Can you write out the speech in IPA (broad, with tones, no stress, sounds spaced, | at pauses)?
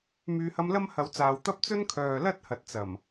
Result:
m yː˨ h ɐ˧ m l ɐ˥ m h ɐ˨˧ w t͡s aː˨ w t̪ ɐ˥ p̚ t͡s ɵ˥ n kʰ œː˨ l ɐ˥ t̚ h ɐ˨ t̚ t͡s ɐ˨˩ m